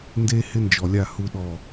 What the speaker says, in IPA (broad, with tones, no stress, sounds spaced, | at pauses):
n d e˦ h ɪ˦ n d͡ʒ ɔ˨ lʲ a˦˨ h u˦ ɗ ɔ˦˨